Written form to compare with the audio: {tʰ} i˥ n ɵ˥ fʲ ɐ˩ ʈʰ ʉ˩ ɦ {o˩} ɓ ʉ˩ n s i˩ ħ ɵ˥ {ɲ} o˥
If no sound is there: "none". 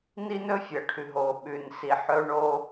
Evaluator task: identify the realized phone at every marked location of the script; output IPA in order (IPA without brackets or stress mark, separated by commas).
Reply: n, o˩, ɳ